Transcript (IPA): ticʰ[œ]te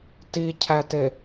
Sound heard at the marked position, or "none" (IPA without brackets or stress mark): æ